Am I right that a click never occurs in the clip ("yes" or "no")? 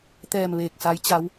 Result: yes